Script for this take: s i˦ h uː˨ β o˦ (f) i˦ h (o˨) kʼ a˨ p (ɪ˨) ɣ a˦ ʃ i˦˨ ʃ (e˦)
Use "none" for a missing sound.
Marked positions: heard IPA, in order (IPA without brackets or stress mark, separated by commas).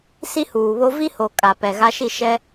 v, o˨, ɛ˨, ɛ˦